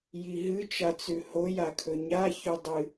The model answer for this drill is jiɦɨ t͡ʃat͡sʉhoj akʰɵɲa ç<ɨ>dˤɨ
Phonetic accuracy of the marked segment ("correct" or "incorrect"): incorrect